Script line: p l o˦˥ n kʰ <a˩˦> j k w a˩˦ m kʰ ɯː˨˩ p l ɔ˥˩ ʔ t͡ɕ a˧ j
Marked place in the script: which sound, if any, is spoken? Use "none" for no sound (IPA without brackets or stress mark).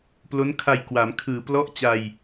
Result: a˧